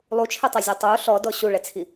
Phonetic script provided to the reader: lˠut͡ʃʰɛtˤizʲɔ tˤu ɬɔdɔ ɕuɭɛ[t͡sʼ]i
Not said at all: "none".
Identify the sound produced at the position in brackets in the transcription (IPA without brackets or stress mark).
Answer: t͡sʰ